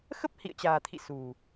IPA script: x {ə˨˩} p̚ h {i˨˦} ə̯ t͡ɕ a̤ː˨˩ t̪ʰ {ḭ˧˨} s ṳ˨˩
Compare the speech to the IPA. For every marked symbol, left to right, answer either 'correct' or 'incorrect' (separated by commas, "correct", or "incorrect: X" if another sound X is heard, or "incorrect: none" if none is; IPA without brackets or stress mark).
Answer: incorrect: ə˦˥, incorrect: ḭ˧˨, correct